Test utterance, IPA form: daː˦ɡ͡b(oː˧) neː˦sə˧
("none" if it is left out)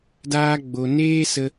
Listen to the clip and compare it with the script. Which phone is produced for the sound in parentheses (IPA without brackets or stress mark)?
o˧